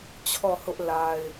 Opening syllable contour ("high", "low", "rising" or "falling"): falling